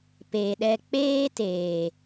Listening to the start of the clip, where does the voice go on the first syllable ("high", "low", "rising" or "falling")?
low